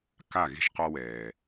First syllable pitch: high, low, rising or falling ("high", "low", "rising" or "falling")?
falling